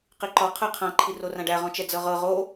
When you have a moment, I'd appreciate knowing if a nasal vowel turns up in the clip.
yes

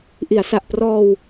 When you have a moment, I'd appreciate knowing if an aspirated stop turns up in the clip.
no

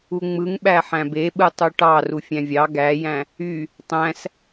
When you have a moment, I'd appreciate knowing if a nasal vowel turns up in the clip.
yes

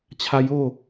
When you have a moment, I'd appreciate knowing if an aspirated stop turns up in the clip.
yes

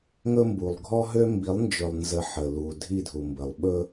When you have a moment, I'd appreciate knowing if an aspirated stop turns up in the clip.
no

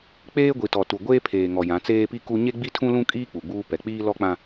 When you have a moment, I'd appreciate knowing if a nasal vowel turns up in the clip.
yes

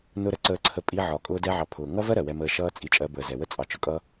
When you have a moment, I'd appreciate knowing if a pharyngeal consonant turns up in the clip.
yes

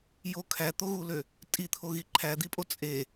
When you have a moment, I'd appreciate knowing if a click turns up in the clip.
yes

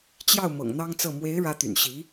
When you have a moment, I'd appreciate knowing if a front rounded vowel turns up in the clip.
yes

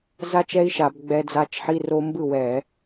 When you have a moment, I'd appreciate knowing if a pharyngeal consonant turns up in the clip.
yes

